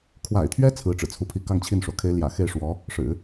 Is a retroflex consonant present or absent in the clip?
present